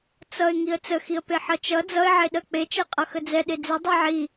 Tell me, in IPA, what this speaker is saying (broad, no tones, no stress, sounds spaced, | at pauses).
t͡s ʌ ɪ̯ ŋ i ə̯ t͡s ə x i ə̯ p e ħ ʌ t͡ʃ ʌ d͡z ʌ ɪ̯ ʕ e ɗ ɜ k͡p e t͡ʃ ɜ qʼ ʌ x ə d͡z ɛ ɗ e d͡z ɛ dˤ ɛ ʕ i